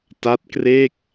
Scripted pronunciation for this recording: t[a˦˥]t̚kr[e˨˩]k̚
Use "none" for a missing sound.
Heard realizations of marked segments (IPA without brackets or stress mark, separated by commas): a˦˥, e˥˩